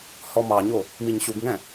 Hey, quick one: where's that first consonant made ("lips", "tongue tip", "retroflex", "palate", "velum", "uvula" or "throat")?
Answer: throat